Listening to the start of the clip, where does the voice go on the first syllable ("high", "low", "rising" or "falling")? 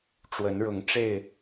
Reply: rising